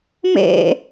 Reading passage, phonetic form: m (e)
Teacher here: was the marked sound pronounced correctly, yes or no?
no